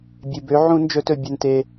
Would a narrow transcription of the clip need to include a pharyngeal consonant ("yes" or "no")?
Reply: yes